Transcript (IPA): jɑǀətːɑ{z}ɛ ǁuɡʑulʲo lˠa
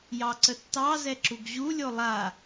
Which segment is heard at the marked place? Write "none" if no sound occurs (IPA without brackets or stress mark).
z